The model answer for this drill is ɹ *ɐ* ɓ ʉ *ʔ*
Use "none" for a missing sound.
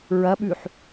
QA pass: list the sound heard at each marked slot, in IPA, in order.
ɐ, ħ

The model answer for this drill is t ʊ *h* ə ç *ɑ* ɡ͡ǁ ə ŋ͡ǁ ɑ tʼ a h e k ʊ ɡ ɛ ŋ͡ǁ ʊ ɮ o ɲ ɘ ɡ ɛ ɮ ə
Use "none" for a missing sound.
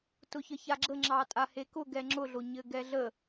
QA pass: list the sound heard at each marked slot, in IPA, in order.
ç, a

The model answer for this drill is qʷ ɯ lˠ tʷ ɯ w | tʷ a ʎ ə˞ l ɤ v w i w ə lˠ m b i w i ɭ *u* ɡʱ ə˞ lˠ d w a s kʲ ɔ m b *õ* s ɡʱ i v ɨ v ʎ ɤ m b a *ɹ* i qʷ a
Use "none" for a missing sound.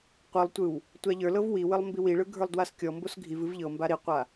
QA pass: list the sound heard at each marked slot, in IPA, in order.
ɯ, o, ɾ

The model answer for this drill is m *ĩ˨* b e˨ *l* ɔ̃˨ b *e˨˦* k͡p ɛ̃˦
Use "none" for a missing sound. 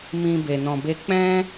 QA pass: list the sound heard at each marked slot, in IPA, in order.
ĩ˧, n, e˧

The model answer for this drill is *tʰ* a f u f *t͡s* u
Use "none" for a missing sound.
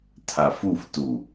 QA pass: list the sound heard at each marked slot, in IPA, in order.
tʰ, t

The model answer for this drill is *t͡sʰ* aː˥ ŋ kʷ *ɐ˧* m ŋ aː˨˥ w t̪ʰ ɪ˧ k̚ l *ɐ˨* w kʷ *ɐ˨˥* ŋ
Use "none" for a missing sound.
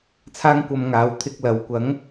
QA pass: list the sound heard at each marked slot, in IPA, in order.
t͡sʰ, ɐ˧, ɐ˨, ɐ˨˥

